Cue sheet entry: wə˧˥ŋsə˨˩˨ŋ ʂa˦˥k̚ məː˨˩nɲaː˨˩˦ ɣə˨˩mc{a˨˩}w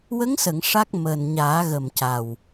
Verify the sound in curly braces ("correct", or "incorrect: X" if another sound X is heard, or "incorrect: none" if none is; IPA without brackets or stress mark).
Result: correct